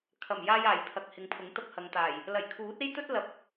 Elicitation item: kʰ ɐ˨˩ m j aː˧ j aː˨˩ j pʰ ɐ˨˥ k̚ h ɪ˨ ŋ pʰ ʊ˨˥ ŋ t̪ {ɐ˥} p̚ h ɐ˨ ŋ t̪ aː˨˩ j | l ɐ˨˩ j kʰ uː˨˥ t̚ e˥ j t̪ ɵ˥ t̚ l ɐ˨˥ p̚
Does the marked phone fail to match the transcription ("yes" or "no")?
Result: no